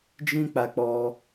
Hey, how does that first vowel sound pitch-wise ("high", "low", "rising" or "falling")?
high